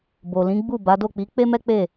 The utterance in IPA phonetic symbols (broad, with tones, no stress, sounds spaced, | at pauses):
b o˨ l ĩ˨˦ ɡ͡b u˦˨ b a˨˦ d o˦˨ k͡p i˨˦ k͡p e˦ m ɛ˦ k͡p e˦˨